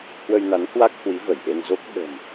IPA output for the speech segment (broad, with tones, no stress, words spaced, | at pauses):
hwə˧jna˨˦nhwa˦˥k̚ hwi˨˦və˧˩jʔe˧nzo˦˥k̚ ɓə̤˨˩m